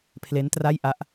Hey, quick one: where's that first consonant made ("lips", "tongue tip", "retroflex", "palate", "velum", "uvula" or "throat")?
lips